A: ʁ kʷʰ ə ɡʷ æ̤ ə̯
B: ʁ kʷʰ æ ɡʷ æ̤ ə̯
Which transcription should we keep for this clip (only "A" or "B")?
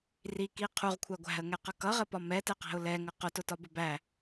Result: B